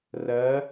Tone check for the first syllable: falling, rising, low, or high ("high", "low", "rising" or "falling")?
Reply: rising